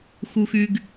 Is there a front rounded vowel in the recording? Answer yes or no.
yes